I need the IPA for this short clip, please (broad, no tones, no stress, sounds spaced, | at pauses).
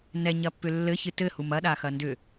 n ɛ ɲ ɐ pː ʏ lː ɘ ç ɨ t ɘ h u m ɐ ɗ a x ɐ n d ʏ